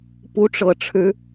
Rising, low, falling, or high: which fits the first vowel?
rising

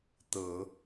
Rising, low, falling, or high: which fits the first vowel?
low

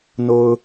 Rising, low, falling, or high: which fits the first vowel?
low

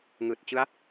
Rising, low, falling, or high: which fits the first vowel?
low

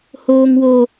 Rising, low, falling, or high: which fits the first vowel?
low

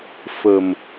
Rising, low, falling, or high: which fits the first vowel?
low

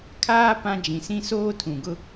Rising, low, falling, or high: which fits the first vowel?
high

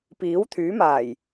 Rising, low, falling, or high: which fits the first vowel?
rising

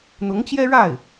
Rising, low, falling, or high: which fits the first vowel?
rising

